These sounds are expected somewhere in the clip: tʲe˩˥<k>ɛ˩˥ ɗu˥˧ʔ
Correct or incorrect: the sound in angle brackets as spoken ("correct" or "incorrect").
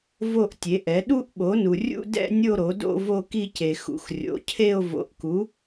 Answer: incorrect